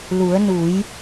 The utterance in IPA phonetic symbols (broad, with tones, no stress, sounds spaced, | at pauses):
l u˩˧ ə̯ n u˩˧ j